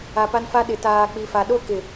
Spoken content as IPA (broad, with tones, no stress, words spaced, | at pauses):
a˨pa˦nfa˦ɗɪ˨ taː˨k͡pi˨fa˨ɗo˦ kɪ˨